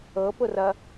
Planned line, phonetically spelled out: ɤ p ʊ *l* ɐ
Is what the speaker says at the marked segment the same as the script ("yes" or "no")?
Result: no